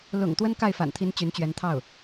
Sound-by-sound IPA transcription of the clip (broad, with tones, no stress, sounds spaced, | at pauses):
l ʊ̰˨˩ ŋ t̪ w ə˥ n k a˥˩ ɪ̯ f a̰˨˩ n t̪ʰ i˧˥ n t͡ɕ y˧˥ n t͡ɕ ɥ ɛ˧˥ n t̪ʰ ɑ˥˩ ʊ̯